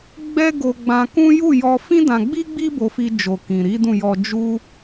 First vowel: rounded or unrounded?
unrounded